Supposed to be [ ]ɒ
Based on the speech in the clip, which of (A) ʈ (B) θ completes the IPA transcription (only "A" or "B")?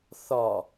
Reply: B